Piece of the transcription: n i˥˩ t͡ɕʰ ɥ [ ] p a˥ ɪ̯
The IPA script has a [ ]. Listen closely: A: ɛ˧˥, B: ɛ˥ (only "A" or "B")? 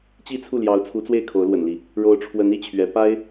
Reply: A